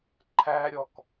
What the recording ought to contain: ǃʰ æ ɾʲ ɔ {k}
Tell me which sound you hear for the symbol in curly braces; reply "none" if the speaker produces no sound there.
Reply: k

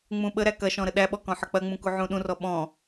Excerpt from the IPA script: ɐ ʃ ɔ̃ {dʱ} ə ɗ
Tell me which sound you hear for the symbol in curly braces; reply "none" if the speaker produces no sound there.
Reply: ɾ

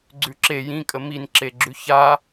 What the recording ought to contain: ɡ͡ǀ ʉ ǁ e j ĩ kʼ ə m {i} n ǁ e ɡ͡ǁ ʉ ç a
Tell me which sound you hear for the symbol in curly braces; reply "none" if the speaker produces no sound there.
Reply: i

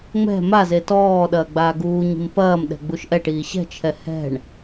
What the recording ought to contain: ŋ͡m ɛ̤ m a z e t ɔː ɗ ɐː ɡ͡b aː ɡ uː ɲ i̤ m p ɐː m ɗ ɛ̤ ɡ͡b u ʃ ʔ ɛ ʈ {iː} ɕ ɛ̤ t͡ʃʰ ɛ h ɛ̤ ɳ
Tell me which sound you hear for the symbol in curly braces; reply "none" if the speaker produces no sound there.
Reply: iː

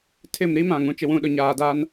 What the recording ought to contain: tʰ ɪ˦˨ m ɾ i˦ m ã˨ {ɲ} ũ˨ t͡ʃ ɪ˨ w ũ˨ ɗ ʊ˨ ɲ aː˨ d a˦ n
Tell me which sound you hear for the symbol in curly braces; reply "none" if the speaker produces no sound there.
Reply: ŋ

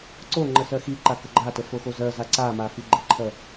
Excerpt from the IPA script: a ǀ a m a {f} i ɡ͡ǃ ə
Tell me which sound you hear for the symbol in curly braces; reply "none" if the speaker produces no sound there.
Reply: f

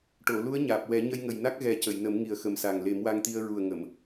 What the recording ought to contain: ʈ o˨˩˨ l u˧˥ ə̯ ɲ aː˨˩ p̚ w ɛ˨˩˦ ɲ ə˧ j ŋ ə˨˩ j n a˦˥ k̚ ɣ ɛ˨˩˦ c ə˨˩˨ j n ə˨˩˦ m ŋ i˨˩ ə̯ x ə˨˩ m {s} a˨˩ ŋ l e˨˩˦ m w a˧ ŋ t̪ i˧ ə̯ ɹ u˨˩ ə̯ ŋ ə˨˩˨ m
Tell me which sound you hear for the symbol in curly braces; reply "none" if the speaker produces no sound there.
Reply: s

